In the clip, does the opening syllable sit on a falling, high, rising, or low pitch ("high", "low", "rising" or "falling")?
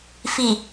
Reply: low